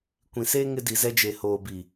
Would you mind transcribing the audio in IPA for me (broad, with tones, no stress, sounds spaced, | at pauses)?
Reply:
kʷ ĩ˨ s eː˦ ŋ ɪ˦ d i˨ z ɛ˦ d͡ʒ e˨ h oː˨ b i˨